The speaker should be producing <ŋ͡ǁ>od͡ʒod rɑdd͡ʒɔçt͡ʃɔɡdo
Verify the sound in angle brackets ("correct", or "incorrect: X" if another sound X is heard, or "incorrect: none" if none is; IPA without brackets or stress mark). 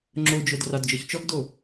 correct